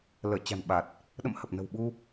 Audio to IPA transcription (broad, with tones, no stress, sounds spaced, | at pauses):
l əː˧˩ t͡ɕ a̤˨˩ n ɓ a˨˩ t̚ | ɗ ə̰˧˨ m h ə˨˩ p̚ n ə̤˨˩ w ɓ u˧